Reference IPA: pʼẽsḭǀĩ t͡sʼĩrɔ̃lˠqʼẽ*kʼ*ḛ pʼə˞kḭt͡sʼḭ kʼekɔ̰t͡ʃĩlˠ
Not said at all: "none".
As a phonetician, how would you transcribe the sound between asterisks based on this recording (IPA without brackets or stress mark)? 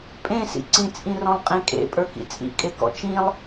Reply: kʼ